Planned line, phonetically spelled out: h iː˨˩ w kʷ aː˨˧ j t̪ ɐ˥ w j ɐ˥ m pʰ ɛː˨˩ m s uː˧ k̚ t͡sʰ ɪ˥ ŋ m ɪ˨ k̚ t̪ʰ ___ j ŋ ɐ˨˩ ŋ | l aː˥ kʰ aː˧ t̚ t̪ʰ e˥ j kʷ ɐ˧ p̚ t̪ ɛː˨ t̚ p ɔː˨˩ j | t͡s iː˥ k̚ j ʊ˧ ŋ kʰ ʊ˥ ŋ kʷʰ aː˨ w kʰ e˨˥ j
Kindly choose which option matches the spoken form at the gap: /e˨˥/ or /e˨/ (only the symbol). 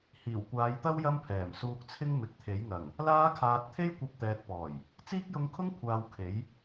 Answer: e˨˥